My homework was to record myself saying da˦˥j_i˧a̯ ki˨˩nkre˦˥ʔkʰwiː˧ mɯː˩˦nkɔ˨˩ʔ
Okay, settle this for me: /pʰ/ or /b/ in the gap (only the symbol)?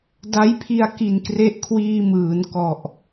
pʰ